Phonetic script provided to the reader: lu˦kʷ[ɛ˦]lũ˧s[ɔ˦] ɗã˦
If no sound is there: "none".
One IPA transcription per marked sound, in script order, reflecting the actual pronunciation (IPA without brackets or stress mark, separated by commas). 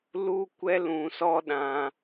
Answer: ɛ˦, ɔ˦